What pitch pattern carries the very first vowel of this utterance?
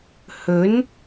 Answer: rising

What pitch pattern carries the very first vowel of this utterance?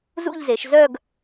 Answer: falling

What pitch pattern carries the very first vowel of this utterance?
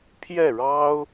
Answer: falling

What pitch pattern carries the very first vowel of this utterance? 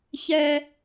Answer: high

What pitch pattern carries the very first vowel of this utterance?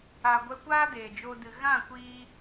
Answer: low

